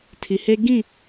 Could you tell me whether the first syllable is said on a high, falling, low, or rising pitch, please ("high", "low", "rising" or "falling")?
low